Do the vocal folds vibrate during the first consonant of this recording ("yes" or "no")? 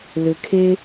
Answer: yes